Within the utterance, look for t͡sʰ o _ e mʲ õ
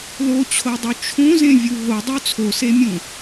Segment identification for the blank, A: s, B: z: A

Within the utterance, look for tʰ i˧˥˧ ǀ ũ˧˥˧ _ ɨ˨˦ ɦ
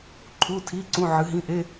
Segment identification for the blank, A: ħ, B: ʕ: B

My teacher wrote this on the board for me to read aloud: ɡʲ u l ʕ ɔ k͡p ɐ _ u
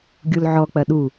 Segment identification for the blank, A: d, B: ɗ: B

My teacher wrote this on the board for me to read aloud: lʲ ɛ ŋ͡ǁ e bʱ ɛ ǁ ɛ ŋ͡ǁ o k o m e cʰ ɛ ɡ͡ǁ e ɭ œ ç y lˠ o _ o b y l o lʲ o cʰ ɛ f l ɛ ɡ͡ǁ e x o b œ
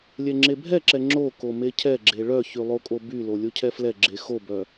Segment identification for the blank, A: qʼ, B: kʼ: B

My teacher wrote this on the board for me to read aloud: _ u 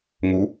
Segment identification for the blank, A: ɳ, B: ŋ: B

